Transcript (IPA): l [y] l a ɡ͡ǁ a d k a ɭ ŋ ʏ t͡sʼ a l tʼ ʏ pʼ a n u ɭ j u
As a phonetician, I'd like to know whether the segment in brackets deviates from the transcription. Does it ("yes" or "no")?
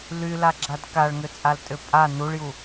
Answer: no